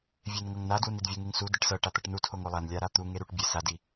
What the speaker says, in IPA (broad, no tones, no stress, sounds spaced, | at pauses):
vʲ e n ŋ ɤ ŋ n a d w u n i d vʲ u ŋ e ŋ s u d i ʈ s ɤ ʈ a t̪ ɤ ʈ n u tʰ o ŋ o lˠ a n lʲ a ɾ a t̪ u ŋ e ɾ u ʈ bʲ e s a d i